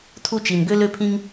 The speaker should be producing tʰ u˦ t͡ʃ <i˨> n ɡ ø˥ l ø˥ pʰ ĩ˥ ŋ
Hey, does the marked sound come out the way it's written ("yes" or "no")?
no